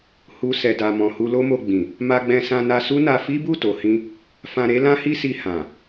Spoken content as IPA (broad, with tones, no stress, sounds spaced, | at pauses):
h u˧ s ɛ˨ d a˨ m ɔ̃˨ h u˧ l o˦ m o˧ ɡ͡b ĩ˨ | m a˧ ɡ͡b ɛ̃˧ s ã˧ n a˧ s u˦ n a˧ f i˦ b u˦˨ t o˨ h ĩ˧ | f ã˧ ɾ e˦ l ã˦ h i˦ s i˧ h ã˨